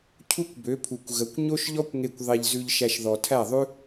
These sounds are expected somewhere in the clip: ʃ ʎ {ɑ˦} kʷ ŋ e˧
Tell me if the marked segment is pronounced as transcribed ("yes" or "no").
no